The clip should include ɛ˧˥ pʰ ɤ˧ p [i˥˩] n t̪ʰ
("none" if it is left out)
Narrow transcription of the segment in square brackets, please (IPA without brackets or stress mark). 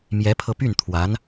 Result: y˥˩